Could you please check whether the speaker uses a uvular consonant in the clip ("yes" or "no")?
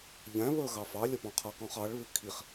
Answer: yes